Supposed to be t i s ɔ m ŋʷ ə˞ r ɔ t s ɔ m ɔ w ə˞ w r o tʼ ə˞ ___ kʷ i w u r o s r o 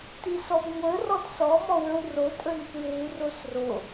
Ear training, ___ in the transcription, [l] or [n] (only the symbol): n